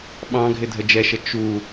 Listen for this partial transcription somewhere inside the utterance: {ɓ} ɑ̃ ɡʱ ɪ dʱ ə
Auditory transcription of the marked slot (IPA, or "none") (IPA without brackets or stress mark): ɓ